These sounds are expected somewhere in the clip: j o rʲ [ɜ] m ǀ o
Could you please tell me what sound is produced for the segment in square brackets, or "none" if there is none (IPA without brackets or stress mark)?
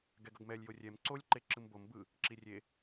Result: ɛ